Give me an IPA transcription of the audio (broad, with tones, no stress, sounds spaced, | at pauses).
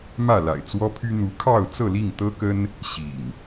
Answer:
m ä˥˨ l a̰˨˩ ɪ̯ t͡s w ɔ˦ pʰ y˦ n̪ u˨˦ kʰ ɑ˥˨ ʊ̯ t͡s ɤ˥˨ l i˥˨ ŋ t̪ ɤ˦ k ə˦ n | ɕ ḭ˨˩ ŋ